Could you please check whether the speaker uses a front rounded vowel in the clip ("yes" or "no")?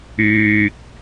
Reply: yes